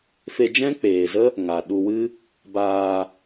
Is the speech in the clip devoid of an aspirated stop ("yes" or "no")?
yes